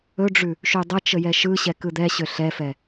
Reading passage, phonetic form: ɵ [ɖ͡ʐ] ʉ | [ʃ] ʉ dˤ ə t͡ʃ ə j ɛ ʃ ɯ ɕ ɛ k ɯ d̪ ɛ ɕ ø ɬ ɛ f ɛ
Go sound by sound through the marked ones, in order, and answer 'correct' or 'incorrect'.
correct, correct

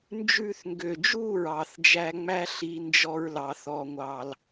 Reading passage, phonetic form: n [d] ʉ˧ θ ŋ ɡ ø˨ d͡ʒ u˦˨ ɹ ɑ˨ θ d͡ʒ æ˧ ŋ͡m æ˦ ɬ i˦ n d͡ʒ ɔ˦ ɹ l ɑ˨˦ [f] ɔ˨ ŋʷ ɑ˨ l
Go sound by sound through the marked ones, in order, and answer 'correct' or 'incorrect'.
incorrect: d͡ʒ, incorrect: θ

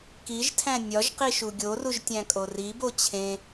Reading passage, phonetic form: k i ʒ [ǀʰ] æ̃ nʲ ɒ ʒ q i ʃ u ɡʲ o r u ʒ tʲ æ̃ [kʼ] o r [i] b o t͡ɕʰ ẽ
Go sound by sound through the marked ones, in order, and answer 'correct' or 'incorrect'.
incorrect: tʰ, correct, correct

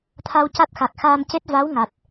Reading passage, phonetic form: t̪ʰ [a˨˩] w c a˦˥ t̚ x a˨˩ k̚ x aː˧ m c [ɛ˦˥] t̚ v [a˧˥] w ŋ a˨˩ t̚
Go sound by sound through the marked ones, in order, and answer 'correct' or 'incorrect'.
incorrect: a˧, incorrect: e˦˥, correct

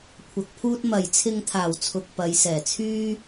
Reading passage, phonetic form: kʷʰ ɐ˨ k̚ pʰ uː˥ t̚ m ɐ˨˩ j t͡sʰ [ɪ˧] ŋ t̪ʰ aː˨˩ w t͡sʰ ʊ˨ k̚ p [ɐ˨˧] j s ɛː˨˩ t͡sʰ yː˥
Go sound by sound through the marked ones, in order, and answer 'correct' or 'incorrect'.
correct, correct

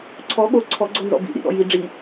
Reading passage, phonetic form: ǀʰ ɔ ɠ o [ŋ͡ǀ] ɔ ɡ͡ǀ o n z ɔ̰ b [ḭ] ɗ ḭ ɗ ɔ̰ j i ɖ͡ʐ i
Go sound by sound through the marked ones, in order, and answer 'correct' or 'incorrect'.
incorrect: ǀʰ, correct

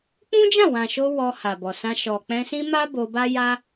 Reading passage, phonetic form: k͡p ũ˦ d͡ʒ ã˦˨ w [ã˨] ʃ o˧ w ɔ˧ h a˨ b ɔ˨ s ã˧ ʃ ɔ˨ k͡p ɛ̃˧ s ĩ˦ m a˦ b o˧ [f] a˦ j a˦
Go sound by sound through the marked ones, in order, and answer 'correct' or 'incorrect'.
correct, incorrect: b

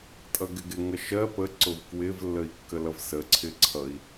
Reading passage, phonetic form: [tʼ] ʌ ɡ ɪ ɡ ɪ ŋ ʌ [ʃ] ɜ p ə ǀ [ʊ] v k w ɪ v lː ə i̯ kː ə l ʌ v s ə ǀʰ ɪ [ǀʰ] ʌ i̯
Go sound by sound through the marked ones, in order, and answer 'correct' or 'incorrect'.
correct, correct, correct, correct

